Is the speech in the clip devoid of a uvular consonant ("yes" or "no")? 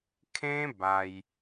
yes